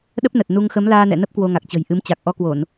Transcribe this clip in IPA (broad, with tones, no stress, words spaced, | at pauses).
ɗə˦˥p̚nə˨˩t̚ nu˧ŋ xə˨˦mlaː˧nɛ̰˧˨nə˦˥p̚ kwo˧ŋa˨˩k̚t͡ɕə̤˨˩jʔɨ˨˦m t͡ɕa˨˩k̚ʔɔ˧kwo˧˩˨n